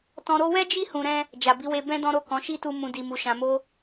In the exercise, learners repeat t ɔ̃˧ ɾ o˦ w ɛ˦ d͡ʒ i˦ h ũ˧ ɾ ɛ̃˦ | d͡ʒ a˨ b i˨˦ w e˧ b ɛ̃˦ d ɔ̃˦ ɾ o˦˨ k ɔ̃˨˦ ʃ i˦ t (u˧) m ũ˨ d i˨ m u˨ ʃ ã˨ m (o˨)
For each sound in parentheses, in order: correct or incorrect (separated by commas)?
correct, incorrect